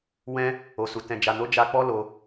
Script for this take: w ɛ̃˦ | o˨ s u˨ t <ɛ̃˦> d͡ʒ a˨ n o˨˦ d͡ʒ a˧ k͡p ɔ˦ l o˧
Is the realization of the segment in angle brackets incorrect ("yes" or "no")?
yes